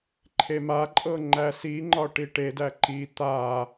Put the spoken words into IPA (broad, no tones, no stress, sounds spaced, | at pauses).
ǃʰ e m a ǃʼ ɤ ŋ͡ǃ æ s i ŋ͡ǃ ɒ ʈ i ʈ e d æ ǃ i t̪ a